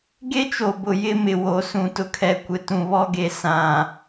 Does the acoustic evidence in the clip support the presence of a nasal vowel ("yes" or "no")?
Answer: yes